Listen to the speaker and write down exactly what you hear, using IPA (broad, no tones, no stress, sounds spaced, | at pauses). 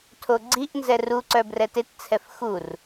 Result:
tʰ o ɡ͡ǀ i ʔ n z ɛ r u ǀ œ b r ɛ t e t t͡sʰ ɛ f x u r